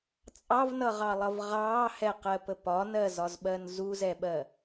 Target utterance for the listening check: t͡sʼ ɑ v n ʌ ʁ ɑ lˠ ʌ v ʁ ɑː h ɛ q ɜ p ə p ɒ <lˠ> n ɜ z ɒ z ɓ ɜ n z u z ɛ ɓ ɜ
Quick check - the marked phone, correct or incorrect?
incorrect: none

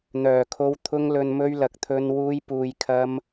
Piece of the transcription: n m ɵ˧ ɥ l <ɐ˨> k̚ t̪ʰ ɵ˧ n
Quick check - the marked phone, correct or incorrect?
correct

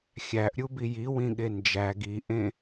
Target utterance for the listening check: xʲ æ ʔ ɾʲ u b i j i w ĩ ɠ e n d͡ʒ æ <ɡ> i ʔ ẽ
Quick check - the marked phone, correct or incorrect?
correct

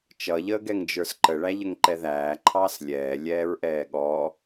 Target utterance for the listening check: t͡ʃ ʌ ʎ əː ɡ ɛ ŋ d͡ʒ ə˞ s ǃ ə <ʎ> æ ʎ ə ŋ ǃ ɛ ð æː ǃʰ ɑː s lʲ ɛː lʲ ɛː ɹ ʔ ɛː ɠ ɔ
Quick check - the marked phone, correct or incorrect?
incorrect: ɭ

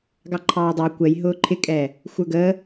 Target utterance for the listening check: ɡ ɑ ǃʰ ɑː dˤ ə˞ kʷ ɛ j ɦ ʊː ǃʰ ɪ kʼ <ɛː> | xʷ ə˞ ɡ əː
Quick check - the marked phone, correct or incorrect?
correct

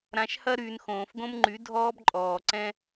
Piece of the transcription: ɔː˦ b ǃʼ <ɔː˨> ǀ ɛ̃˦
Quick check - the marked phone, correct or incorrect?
correct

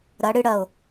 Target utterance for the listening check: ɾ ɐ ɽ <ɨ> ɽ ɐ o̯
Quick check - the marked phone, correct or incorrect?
correct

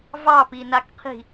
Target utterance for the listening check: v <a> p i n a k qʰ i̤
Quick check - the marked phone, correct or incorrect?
incorrect: ɑ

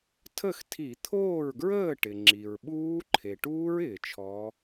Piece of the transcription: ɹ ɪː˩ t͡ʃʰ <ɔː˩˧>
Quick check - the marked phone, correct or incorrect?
correct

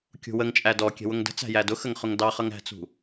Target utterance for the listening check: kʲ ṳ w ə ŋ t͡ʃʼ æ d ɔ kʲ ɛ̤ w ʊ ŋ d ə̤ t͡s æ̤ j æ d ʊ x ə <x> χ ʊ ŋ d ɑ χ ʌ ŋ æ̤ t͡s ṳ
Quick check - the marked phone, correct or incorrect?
incorrect: ŋ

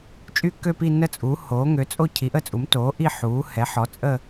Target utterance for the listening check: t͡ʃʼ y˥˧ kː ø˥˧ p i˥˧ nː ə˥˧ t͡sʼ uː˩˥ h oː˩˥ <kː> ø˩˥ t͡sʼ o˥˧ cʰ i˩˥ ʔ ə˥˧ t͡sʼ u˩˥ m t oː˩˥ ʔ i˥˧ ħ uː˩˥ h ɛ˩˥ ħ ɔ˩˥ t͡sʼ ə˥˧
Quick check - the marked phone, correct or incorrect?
incorrect: ŋ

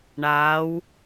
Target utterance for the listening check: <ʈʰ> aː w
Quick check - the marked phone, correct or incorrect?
incorrect: ɳ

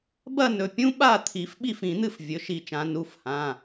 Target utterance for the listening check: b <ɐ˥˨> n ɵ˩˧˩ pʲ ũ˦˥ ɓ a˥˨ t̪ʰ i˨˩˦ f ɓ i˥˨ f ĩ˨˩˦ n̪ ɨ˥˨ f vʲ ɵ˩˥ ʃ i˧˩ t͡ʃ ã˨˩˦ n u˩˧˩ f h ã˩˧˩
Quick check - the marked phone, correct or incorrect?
correct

